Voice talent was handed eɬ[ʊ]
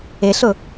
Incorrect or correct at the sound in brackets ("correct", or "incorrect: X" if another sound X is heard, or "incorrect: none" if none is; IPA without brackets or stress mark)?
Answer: correct